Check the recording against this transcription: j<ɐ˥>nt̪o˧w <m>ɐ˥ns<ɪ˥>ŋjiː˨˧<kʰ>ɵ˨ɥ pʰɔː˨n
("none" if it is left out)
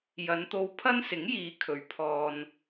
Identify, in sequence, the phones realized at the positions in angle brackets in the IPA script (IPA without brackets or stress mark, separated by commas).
ɐ˨˧, pʰ, ɪ˨˥, kʰ